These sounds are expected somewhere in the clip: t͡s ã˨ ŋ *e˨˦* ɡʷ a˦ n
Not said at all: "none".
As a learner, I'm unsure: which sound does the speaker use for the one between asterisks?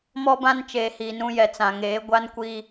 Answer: eː˨˦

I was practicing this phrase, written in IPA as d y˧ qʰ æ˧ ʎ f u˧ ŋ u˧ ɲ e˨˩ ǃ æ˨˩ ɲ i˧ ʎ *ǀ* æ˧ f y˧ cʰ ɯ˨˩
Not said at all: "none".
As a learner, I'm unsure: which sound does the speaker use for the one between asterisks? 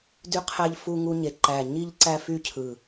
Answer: ǀ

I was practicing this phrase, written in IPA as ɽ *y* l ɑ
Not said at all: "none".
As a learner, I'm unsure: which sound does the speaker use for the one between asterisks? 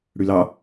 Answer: y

